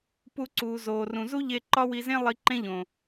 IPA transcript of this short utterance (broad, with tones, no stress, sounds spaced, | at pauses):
p u˧ ǀ uː˨ z oː˨ r ũ˨ z u˦ ʎ e˧ ǃ ɒ˦ w i˧ z ẽ˦ lˠ i˧ ǃ ẽ˦ ʎ õ˨